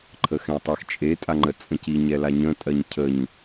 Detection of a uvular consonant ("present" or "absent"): absent